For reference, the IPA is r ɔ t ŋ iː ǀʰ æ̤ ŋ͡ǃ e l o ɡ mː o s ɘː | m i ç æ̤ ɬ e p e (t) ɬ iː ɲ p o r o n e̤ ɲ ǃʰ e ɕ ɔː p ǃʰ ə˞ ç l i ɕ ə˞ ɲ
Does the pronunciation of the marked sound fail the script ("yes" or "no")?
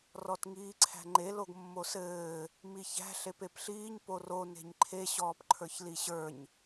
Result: yes